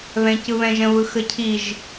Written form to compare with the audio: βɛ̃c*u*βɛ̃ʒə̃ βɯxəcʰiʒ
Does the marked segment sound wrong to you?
yes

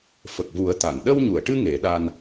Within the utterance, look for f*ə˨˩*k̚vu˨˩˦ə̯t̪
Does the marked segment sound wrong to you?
no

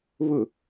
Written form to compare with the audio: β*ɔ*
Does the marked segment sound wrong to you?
yes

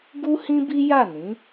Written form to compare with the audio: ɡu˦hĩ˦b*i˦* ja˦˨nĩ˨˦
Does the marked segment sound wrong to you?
no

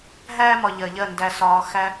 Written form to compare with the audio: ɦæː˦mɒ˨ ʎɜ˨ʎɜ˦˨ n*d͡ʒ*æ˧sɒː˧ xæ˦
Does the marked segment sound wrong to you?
yes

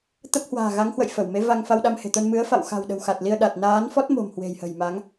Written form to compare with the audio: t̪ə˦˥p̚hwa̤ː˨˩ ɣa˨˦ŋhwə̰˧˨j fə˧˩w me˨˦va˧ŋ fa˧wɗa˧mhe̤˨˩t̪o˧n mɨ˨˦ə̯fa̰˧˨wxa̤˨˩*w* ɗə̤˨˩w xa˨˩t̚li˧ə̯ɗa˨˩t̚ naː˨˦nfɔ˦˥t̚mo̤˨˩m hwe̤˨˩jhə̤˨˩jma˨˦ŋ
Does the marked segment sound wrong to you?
no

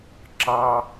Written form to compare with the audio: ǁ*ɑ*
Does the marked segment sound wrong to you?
no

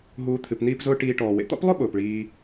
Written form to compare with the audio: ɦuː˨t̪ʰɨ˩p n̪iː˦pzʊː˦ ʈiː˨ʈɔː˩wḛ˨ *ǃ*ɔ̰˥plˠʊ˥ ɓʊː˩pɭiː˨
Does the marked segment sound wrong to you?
yes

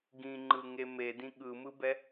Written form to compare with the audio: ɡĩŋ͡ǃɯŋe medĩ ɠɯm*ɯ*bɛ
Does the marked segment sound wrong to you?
no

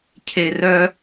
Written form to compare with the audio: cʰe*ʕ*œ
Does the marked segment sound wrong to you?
yes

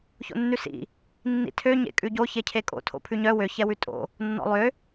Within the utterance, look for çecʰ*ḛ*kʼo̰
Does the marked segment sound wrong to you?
yes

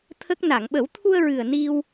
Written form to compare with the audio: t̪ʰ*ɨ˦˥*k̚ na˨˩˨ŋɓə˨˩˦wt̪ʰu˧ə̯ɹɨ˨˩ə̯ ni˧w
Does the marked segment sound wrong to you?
yes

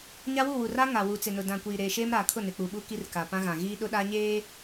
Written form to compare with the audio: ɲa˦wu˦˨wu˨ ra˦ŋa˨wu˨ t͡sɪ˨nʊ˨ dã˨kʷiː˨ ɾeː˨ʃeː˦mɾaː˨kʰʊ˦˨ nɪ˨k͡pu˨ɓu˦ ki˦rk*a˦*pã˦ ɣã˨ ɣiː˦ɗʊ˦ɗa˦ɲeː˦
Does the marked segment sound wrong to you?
yes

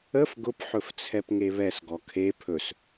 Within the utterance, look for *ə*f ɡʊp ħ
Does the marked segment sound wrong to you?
no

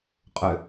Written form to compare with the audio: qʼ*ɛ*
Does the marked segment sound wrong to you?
yes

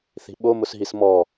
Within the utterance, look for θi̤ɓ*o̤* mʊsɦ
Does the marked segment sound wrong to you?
yes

